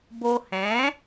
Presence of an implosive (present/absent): absent